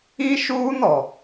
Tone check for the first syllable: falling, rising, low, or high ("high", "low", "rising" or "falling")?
high